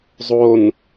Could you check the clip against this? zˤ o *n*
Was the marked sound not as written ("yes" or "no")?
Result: no